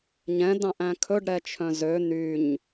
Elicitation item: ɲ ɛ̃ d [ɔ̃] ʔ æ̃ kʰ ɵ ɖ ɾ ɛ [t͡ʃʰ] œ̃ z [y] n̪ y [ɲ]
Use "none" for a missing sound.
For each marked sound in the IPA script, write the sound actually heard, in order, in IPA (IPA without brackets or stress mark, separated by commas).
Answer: ɑ̃, t͡ʃʰ, ø, ɲ